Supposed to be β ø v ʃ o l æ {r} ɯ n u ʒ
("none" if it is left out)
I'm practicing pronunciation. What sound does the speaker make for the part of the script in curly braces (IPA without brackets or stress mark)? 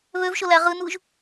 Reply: ʁ